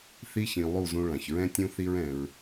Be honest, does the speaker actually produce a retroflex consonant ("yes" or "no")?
yes